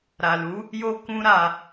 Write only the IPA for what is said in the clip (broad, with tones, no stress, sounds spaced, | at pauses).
ɾ a˨ l u˨˦ | j o˧ k ũ˦ ɾ a˧